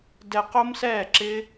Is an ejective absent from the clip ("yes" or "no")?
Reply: yes